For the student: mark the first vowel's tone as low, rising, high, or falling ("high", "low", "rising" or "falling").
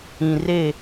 low